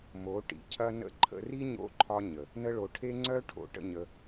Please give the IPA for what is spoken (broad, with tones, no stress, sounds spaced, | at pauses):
m o˨˦ ʈ ḭ˨ cʰ ɐ˧ n ə̰˧ ǃʰ ə̰˧ r i˦ ɲ o̰˧ ǃʰ ɒ˧ ɲ ə˨ | n ə˧ ɭ o˨ ʈʰ e˦ ŋ͡ǀ œ˦ ʈʰ o̰˨ ʈ ə̰˧ ɲ ə˧